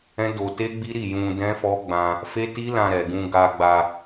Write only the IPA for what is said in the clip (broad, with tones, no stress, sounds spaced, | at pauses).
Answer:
ɛ̃˦ d o˧ t e˦ ɡ͡b i˦ ɾ i˦˨ j ũ˧ d ɛ̃˦ f ɔ˦ ɡ͡b ã˧ | f e˦ t i˦ l ã˧ ɾ ɛ˨ ɡ ũ˧ ɡ a˧ ɡ͡b a˧